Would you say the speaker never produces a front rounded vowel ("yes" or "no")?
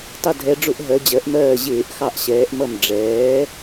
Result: yes